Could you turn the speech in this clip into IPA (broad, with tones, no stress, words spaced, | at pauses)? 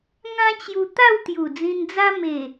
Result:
ŋã˦t͡ɕju˧ t̪a˥˧wt̪ju˨˩ d͡zĩ˧nd͡za˦ me˨˩